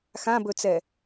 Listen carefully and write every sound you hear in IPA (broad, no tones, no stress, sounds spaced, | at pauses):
x ã b ɵ t͡s ɛ